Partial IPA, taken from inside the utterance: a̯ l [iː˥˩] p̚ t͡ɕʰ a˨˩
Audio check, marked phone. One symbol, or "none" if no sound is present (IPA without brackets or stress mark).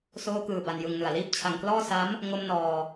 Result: iː˥˩